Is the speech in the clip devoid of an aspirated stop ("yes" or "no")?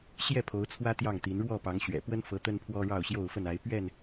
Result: no